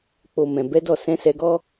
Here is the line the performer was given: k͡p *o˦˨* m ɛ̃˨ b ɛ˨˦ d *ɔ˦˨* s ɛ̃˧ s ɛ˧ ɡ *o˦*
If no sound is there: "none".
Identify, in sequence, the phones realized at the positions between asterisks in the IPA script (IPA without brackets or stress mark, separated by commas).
o˨, ɔ˦˨, ɔ˦